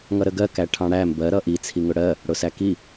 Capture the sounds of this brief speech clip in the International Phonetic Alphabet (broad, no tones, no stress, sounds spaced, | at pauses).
ŋ ʌ ɾ ə ɡ ɜ k æ ʈʰ ɑ̃ ɽ æ m b ɜ ɾ ʌ ʔ i t͡sʰ i ŋ ʊ ɽ ɜ | ɽ ʊ s æ k i